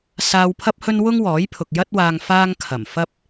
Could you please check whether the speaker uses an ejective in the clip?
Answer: no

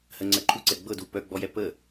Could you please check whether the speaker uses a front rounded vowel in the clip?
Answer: yes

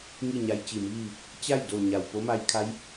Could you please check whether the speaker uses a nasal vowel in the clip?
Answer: no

